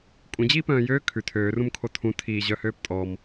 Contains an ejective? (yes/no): yes